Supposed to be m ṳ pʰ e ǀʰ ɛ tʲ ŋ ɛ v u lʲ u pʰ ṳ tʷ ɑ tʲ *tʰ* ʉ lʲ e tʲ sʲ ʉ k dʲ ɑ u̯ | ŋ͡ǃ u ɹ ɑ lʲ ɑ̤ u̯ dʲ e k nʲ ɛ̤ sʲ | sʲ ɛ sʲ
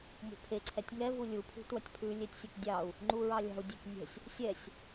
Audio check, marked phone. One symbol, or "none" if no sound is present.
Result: pʰ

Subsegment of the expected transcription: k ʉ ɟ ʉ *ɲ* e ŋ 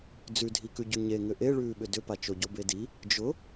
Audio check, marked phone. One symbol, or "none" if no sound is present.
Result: ɲ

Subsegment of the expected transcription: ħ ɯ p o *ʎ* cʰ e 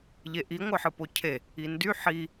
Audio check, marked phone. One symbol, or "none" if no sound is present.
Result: none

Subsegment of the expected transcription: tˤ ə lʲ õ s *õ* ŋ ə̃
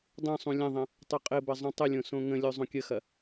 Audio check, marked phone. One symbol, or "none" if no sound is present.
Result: õ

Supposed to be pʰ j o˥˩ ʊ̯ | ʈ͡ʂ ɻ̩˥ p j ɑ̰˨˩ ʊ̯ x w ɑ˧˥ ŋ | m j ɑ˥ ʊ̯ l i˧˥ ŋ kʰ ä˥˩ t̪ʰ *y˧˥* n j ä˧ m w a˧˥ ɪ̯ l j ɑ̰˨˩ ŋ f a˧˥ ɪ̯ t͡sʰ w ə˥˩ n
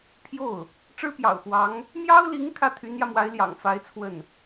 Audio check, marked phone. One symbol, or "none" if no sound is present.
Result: y˧˥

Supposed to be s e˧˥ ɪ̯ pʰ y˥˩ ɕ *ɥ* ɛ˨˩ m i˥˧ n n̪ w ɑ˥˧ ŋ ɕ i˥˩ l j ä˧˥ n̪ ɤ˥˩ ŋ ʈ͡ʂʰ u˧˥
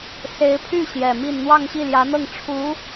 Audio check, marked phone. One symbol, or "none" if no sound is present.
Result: j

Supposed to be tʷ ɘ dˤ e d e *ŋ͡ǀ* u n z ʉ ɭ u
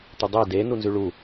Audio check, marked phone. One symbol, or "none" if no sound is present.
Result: n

